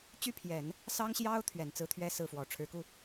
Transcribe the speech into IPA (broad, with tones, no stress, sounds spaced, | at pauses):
t͡ɕ y˥˩ pʰ j ɛ˨˩˦ n | s ɑ˥ ŋ ɕ j ɑ˥ ʊ̯ t̪ʰ ɥ ɛ˨˩ n t͡s ɹ̩˥ t̪ʰ ɥ ɛ˥ s ɹ̩˥˩ f w ɔ˨˩ ʈ͡ʂʰ ɻ̩˧˥ k u˥˩